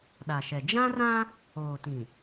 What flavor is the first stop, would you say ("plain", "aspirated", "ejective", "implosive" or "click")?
implosive